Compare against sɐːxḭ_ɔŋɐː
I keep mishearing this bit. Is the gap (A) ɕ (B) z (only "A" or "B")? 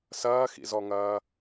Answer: B